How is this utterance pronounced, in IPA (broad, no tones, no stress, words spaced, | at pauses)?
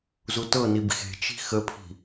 zutɤnib xe̤t͡ʃi̤ xəpʰi̤